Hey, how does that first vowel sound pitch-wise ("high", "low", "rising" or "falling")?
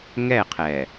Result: falling